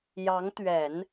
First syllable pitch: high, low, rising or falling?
rising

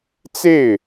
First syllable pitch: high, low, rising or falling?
falling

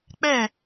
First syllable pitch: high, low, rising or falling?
falling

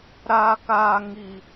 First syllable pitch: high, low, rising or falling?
low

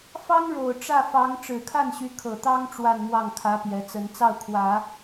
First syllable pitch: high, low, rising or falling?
high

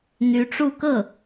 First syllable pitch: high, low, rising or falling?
rising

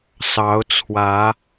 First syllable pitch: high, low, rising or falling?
rising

